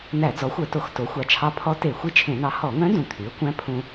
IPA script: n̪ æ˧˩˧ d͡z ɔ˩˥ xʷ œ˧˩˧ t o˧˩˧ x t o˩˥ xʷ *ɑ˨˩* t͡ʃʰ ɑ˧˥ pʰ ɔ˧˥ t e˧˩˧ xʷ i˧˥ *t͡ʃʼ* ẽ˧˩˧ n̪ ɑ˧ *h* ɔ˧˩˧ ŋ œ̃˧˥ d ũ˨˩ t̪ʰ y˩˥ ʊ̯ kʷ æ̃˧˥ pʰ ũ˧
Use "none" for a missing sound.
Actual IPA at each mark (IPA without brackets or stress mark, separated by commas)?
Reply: ɑ˨˩, t͡ʃʰ, h